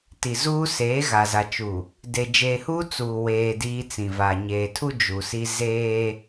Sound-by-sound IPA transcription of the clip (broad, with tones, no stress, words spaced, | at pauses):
ti˨zuː˦ seː˨˦ɣa˨za˨t͡ʃu˨ | de˨ d͡ʒeː˨huː˦ t͡suː˨weː˨ diː˦t͡sĩ˨va˨ ɲeː˨tʰu˦ d͡ʒu˨si˦ zeː˦